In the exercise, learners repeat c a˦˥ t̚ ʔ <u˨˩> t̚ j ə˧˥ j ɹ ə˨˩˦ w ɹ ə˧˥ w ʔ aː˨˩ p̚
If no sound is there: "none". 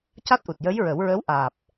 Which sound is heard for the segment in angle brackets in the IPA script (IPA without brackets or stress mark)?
u˨˩